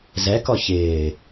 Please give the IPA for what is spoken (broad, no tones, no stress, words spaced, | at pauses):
zɛkɔ çɪː